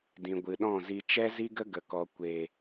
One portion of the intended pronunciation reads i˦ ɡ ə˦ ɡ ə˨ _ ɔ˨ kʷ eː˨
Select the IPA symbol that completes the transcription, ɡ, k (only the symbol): k